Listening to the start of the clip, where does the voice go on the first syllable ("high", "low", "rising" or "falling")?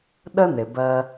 high